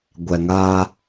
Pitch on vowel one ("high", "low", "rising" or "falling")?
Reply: low